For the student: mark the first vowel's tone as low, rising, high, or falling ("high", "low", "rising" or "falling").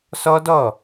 high